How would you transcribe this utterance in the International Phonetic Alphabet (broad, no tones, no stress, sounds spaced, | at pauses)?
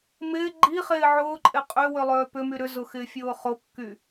m ɪː ɡ͡ǃ i χ ɪː ʕ ʊː ǃʼ ɪ qʼ ø w ʏ lˠ øː p ʏ m y ɾ ʏ z ʊ x ɪː fʲ ʊː χ o kː y